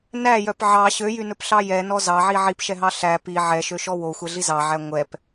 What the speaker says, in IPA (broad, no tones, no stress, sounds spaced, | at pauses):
n æ j œ p ʕ ɑ ɕ ø j y n ɵ p ɬ ɑ j ɛ n ɔ z ɑ ʕ i ʕ i p ʃ ɛ ɦ ɑ ɬ æ p i ʕ ɛ ʃ ø ʃ ɔ w o xʷ ɛ ɮ i z ɑ ʕ æ ŋʷ ɛ p